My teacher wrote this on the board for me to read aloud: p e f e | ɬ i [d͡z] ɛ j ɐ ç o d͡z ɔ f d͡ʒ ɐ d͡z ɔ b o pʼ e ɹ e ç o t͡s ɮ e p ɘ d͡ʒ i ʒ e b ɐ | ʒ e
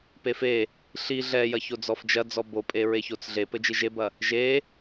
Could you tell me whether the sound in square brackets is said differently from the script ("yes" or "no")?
yes